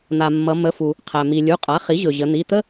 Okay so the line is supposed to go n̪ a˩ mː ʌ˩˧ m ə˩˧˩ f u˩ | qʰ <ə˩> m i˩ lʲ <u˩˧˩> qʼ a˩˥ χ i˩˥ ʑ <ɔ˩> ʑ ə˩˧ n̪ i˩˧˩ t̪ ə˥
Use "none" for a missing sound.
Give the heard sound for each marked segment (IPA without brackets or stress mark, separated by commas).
æ˩, u˩˧˩, ɵ˩